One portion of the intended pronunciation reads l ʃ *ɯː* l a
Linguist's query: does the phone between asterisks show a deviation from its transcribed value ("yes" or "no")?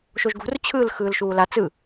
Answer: yes